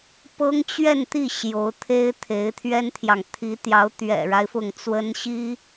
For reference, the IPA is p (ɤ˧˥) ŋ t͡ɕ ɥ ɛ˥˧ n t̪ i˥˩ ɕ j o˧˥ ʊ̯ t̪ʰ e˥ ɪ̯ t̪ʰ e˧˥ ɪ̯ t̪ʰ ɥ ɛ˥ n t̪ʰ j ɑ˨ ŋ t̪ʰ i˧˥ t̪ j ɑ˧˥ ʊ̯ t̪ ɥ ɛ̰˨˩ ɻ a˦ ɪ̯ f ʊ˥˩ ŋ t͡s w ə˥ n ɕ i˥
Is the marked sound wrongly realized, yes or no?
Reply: yes